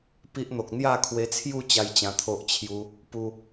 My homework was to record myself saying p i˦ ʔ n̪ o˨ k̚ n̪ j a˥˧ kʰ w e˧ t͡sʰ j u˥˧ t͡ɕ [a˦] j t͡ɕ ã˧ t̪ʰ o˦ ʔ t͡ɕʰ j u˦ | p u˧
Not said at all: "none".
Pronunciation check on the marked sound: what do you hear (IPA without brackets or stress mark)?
a˦